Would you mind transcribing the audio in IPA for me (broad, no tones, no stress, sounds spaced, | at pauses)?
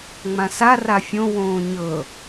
ŋ͡m ã s a r a fʲ õ w õː ɲ ɤ